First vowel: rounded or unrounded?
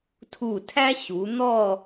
rounded